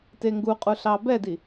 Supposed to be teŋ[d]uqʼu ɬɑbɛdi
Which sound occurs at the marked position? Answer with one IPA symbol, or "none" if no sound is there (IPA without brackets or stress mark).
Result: ɡ